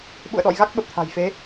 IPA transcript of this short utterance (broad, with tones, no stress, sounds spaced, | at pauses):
ɓ ṵ˧˨ ə̯ ɗ ɔ̰˧˨ j ɣ a˦˥ k̚ ɓ ə˨˩ p̚ t̪ʰ a̤˨˩ j f e˨˦